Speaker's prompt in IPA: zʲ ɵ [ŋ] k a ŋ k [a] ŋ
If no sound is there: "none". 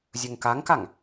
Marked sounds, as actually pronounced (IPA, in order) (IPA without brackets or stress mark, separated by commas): ŋ, a